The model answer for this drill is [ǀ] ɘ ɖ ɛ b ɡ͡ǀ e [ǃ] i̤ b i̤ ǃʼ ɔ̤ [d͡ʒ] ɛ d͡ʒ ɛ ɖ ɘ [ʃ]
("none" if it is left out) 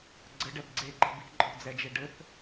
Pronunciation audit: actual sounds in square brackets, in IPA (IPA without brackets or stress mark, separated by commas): ɡ͡ǀ, ǃ, d͡z, θ